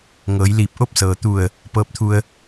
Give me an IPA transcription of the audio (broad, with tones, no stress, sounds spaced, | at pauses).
ŋ ɤː˩˧ j l iː˧˩ p̚ ʔ o˥˨ p̚ s ɤː˩ t̪ u˧˩ ə̯ | p ɤː˧˥ p̚ t̪ʰ u˧ ə̯